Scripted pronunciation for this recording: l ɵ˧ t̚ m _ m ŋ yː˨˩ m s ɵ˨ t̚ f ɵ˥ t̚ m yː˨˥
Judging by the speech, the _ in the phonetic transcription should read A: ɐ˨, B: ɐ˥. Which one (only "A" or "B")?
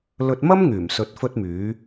B